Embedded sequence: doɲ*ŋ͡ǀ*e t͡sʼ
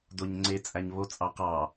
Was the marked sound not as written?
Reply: no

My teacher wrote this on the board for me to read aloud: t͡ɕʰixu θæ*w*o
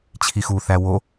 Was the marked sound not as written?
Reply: no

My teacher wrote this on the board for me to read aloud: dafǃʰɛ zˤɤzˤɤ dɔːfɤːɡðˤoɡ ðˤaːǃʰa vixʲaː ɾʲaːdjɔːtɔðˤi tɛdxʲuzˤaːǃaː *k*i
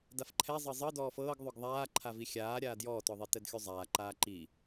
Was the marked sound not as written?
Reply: yes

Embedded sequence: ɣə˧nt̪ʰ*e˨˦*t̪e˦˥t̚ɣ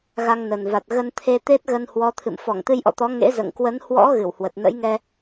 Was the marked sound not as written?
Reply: yes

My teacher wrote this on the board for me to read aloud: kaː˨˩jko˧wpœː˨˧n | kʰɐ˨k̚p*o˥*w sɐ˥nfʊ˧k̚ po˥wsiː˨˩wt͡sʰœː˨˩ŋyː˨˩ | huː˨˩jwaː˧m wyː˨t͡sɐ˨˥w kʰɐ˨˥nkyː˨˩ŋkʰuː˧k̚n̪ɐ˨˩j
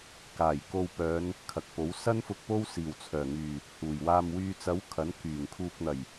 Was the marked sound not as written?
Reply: yes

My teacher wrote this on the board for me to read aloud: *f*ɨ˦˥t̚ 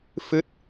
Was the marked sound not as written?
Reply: no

